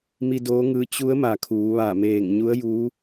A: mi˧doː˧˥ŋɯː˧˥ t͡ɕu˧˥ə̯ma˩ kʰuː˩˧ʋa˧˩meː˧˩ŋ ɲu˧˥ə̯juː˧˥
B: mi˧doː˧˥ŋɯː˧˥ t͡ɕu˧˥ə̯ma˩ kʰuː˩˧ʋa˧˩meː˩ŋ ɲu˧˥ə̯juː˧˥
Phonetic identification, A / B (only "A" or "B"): A